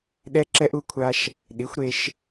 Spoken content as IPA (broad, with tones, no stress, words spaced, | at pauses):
ɗɛ˧ ǁɛ˧ʔu˧kʷʰa˧ʃ | ɗi˩˥xʷ ɾe˧ʃ